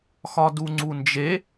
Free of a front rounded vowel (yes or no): yes